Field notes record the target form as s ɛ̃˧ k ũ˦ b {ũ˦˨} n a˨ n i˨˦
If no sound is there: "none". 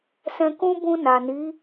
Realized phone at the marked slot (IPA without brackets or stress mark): ũ˧